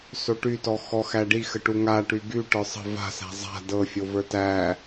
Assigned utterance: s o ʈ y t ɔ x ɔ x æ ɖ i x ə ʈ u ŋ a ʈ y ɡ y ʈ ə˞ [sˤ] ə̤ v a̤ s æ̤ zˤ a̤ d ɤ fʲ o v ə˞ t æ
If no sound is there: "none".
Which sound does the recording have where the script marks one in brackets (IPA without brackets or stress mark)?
sˤ